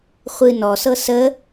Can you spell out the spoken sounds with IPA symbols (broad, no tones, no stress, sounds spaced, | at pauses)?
χʷ ɨ n ɔ s ɤ s ə